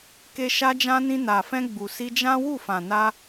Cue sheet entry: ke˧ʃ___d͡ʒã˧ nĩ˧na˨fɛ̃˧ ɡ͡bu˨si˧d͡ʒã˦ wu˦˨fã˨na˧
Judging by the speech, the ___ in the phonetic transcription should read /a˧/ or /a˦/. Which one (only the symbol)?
a˧